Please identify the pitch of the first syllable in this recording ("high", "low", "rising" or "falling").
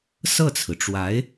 falling